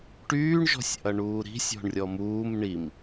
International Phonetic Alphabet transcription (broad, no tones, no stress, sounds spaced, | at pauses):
ʈ yː ɳ ʒ ɔ̤ sʲ ʔ ɐ ɳ uː ɾ i̤ sʲ ɔ̤ ɳ rʲ ɔ m uː m ɳ i m